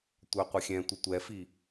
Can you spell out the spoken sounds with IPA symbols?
tʷœqʷəxʲɛ̃tʷə tʷɛfi

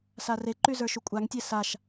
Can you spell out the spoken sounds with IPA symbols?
sareǃy zə˞ʃukʷʼaŋtʲe saʃ

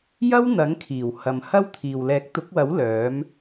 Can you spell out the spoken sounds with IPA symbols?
jɐ˥wn̪ɐ˨˥ŋkʰiː˨˩w hɐ˨mhɐ˥wt̪ʰiː˨w lɛː˨˥k̚t̪ʊ˨˥k̚wɐ˨˥w lœː˨˥m

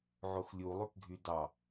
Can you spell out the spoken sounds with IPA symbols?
ʕoxlʲu lˠykɡʱydɑ

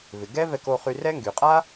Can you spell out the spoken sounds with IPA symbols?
vɪ˩ɡɛ˥vɛ˧ko˧ χy˧rɛ˥ŋɡy˩ qʼa˥

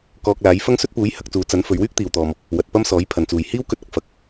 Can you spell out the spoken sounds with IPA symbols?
kɔː˧k̚laː˨˥j fɐ˥ŋsɵ˥t̚ puː˨˥j hɐ˨˥k̚t͡suː˨˥ t͡sɐ˨˥n fɵ˨˧ɥwyː˥k̚t̪iː˨wt̪ɔː˨m | wɐ˨t̚pɐ˥msɔː˨˥j pʰɐ˨˩nt͡suː˨˩j hiː˥wkɵ˧t̚ɐ˨k̚ fɐ˨k̚

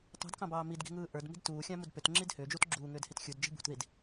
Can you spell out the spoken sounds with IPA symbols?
tˤṳdkɑ̃bɑː midɡi̤ŋɯː ʔə˞dmi̤d tuːxʲɑ̃mud pʏtŋ͡ǁid hʏːd͡ʒut ɡ͡ǁuːŋʏːdhit xʲudd͡ʒi̤ bṳtðid

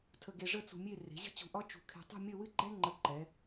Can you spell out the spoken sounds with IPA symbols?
tʰə˧ɡe˧ʐə˥˧ t͡sṳ˧mʲe˥˧ re̤˩˧ ʑə̤˥t͡ɕṳ˧˩ʔɒ˥ t͡ʃṳ˧˩kʰe̤˧ tˤṳ˥˧mʲə˥˧ wɨ˥ɡ͡ǃɛ˥ ŋ͡ǃə˧ǃɛ˩˧

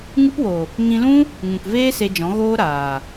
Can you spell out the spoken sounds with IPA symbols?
ŋɨ˦pwo˨ | ŋĩ˧lũ˦ | ŋũ˨kveː˦ se˧ d͡ʒɔ̃˨˦ɣoː˦ɾaː˨

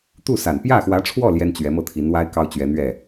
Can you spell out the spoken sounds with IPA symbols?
t̪u˥˩sa˨˩n pjä˥˩xwä˧˥ʈ͡ʂʰwɔ˥˩ ljɛ˥nt͡ɕɥɛ˧˥mɤ˥˩ t̪ʰi˧˥nwa˥ɪ̯ kɑ˥ʊ̯t͡ɕɥɛ˧˥n̪ɥɛ˥˩

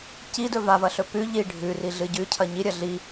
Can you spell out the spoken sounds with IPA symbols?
cidɵ vavɐɬɵ pʉ ʎi ɖʱʉriɮɨ ɟʉcʰɐ ɲiɾʲɐ ɮi

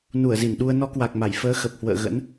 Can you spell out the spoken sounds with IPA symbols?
nu˧˩ə̯zi˧˩n ɗu˧ə̯ nɔ˨˦kwa˨˩k̚ma˧˩j fəː˨˦xə˨˩p̚hwə̰ː˧˨ ɣə̰˧˥n

